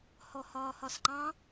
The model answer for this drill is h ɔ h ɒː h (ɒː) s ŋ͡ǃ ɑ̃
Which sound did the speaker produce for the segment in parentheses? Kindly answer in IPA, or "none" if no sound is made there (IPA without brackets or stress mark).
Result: ɒ